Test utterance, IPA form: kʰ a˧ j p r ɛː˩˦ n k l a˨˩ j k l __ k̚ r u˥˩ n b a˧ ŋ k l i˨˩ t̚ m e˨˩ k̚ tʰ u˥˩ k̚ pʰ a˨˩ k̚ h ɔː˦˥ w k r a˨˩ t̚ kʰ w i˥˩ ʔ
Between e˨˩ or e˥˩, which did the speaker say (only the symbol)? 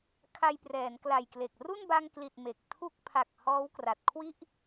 e˨˩